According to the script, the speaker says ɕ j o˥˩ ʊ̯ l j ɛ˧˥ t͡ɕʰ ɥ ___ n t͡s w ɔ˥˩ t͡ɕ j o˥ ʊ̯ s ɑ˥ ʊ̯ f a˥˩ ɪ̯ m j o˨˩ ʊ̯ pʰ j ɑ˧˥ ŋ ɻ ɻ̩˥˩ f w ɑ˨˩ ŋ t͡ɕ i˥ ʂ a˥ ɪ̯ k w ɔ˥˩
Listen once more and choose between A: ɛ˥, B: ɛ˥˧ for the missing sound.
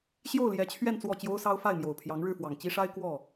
B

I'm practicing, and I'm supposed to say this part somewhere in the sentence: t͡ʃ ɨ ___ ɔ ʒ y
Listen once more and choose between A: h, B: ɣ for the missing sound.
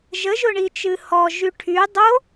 A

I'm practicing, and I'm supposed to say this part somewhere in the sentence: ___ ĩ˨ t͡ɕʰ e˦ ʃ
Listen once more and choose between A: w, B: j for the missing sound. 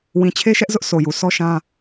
A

